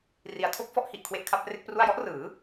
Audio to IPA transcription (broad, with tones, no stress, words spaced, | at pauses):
ri˨˩a̯tʰo˥˩k̚fɔ˦˥ʔhi˨˩ʔ kʰwe˦˥ʔkʰa˦˥p̚re˥˩k̚pru˥˩a̯ jɔ˦˥ʔrɯː˩˦